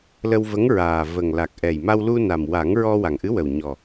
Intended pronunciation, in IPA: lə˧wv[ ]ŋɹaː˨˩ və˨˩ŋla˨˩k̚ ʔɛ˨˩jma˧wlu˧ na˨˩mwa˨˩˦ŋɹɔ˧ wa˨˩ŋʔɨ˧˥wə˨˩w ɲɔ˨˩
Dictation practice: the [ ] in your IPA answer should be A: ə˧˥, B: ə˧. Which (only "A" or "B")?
A